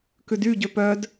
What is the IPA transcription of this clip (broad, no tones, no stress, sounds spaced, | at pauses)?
k ʉ d y ɟ ø p œ d